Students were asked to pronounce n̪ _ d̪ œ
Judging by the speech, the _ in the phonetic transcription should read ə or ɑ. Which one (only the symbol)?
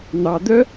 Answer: ɑ